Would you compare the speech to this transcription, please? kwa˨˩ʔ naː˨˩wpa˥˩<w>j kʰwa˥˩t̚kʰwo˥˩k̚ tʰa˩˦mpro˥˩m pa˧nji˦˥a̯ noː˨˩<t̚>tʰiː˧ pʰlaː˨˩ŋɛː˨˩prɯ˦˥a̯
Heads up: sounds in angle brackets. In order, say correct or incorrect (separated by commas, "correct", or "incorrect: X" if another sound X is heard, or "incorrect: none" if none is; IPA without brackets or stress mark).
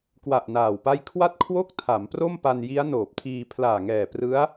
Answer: incorrect: none, incorrect: p̚